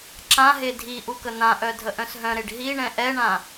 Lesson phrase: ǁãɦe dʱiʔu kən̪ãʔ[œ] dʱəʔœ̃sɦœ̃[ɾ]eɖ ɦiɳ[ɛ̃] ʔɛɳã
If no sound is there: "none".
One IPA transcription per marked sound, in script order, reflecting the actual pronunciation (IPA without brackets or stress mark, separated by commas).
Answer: œ, ɾ, ɛ̃